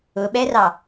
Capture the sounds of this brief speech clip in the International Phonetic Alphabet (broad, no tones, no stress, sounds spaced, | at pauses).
ʊ ɓ ɛ r ɑ